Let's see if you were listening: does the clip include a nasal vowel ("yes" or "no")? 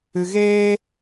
no